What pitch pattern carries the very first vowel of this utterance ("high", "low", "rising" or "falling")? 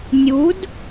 rising